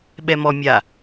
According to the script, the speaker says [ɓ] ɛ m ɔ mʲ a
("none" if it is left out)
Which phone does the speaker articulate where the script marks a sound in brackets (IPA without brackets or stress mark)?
ɓ